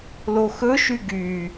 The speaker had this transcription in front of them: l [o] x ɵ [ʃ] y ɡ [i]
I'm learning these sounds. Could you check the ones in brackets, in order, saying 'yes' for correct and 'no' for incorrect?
yes, yes, no

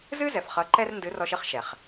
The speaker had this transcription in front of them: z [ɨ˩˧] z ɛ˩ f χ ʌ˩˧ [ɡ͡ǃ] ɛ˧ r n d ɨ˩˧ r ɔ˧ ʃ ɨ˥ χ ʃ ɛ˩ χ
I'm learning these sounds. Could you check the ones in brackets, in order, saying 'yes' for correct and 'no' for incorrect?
no, no

